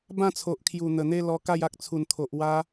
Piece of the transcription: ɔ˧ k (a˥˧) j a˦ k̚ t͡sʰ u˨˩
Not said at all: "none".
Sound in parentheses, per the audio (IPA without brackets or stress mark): a˥˧